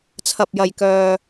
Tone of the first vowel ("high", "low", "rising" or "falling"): low